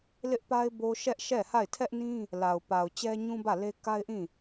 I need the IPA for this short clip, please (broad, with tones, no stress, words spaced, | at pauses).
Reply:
lɪ˦ʔpa˦ɪ̯ bo˦ ʃɛ˦ʔʃɛ˦˨ ha˦˨ɪ̯tʰɛ˦ʔnĩ˦ | la˨ʊ̯pa˨ʊ̯ t͡ɕɛ˦ɲũ˦bä˦˨le˦ ka˦ɪ̯ʔĩ˦˨